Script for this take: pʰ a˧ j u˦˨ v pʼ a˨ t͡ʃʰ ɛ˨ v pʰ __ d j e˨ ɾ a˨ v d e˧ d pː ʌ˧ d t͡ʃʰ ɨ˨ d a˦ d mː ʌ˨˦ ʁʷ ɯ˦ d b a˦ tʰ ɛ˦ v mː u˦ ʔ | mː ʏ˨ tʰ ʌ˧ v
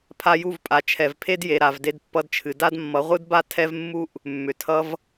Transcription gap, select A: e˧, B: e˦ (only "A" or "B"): B